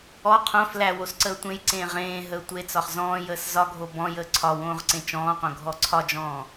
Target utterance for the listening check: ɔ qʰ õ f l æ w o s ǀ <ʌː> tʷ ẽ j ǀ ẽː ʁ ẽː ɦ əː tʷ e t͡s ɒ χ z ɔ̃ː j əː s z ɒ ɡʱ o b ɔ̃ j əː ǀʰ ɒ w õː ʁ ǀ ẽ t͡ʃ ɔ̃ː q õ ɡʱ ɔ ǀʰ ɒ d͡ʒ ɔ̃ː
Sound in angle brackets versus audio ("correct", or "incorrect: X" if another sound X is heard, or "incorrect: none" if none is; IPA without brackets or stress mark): incorrect: əː